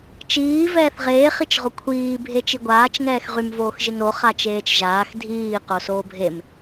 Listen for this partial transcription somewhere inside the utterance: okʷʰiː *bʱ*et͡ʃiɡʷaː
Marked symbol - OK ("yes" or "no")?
yes